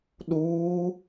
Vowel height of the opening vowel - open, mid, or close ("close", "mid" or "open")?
close